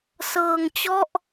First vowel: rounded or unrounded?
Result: unrounded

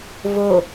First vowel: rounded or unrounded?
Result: rounded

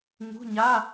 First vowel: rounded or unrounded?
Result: rounded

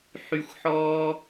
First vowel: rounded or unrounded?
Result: rounded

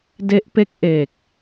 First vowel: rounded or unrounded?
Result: unrounded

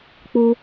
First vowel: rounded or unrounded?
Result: rounded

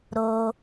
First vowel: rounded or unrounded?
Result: rounded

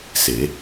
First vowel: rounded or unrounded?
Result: unrounded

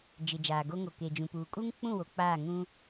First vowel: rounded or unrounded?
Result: unrounded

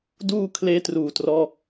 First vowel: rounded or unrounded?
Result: rounded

